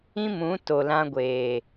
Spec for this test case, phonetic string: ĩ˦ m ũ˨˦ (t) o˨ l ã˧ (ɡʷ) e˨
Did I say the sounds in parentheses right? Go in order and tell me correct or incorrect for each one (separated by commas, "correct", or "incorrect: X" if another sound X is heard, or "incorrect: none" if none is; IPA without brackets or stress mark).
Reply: correct, correct